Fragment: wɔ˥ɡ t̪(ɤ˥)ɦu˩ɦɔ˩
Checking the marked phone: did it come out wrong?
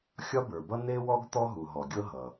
yes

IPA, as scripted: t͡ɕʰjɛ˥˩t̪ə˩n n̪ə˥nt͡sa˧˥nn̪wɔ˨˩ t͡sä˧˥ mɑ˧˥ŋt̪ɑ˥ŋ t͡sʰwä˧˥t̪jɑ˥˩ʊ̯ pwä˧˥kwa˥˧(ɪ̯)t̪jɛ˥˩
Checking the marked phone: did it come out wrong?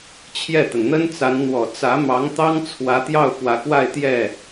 no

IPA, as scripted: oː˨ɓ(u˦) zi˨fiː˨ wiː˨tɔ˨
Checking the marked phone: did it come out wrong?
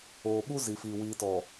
no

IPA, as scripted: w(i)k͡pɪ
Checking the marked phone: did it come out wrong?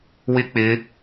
yes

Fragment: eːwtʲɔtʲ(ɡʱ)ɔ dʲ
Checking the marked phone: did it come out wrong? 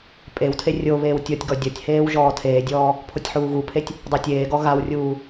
yes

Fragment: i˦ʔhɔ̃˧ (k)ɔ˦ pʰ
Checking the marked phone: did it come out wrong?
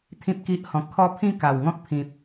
yes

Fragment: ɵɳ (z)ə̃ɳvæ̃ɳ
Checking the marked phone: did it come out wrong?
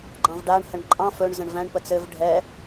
no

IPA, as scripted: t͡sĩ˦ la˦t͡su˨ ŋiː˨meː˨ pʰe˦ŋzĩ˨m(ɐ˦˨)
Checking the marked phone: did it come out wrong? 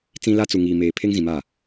yes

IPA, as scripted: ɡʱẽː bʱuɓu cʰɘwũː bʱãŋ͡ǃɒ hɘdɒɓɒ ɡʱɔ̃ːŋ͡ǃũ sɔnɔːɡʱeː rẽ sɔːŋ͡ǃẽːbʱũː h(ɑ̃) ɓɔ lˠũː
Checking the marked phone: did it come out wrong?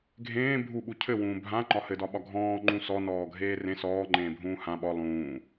yes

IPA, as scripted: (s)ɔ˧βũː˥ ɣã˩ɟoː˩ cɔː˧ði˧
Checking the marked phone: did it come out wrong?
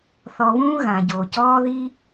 yes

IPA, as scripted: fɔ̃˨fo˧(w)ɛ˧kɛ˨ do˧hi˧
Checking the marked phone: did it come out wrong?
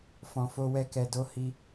no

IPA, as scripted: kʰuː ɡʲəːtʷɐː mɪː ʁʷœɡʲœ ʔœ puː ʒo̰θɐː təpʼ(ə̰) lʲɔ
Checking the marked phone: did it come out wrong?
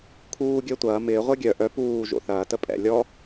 yes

